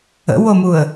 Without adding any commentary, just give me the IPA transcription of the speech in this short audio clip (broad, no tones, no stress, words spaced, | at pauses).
ə̰womuə̯